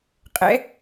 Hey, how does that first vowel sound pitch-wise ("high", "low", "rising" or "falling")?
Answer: rising